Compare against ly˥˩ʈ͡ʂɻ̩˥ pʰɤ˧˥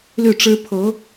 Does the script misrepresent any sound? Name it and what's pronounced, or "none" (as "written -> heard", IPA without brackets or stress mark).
none